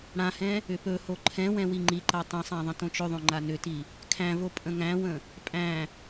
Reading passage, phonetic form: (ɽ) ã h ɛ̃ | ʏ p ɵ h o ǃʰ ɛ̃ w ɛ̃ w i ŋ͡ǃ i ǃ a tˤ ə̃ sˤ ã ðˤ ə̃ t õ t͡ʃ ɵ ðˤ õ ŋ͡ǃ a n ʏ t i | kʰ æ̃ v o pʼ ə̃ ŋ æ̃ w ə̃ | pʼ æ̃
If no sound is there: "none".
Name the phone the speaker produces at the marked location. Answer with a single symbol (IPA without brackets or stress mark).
ɽ